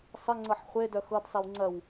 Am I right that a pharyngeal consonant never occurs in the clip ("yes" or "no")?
no